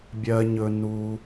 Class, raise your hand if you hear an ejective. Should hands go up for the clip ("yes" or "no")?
no